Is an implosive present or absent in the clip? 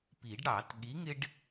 present